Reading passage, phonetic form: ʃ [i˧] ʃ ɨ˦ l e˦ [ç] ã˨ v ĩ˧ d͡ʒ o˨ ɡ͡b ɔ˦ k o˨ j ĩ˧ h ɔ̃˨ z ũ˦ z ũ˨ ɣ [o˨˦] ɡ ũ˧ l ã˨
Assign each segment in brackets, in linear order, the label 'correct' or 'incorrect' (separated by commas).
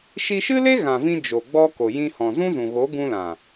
correct, incorrect, correct